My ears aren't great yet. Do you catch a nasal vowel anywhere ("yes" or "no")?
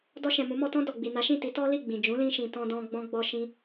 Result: yes